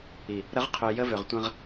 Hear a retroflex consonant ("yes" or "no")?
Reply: no